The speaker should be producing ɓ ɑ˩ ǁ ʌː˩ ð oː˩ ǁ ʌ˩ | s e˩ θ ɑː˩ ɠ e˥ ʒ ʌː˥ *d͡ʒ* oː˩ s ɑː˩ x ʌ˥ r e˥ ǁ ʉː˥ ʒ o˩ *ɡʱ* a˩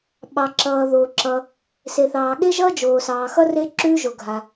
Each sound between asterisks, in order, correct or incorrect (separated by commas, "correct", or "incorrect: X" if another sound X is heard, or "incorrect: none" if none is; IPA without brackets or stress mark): correct, correct